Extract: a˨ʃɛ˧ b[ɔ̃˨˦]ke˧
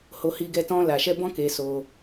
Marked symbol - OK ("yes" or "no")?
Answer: no